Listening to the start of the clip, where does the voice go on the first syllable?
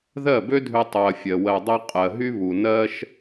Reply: falling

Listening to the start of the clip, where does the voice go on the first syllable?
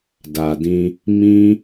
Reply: low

